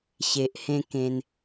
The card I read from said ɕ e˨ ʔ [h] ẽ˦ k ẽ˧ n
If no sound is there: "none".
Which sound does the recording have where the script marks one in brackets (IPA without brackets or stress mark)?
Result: h